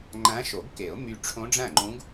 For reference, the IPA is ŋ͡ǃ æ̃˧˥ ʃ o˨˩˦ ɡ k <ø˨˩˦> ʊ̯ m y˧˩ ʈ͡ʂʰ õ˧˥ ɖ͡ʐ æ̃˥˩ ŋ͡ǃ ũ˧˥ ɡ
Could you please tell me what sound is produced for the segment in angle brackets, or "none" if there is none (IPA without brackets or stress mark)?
e˨˩˦